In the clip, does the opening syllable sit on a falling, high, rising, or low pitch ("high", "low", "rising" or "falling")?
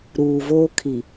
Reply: low